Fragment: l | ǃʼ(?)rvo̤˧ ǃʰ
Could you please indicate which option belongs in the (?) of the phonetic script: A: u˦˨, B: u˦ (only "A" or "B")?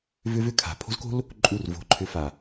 A